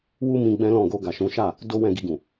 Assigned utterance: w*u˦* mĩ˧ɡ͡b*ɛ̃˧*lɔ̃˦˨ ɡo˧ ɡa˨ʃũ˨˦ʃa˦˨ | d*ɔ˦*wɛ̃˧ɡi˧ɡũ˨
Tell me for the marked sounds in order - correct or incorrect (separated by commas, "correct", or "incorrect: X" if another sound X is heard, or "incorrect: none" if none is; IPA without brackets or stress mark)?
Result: correct, incorrect: ɛ̃˦, incorrect: o˦